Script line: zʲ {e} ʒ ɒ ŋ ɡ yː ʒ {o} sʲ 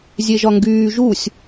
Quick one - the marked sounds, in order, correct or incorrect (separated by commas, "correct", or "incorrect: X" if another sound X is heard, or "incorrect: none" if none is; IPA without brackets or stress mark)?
correct, incorrect: u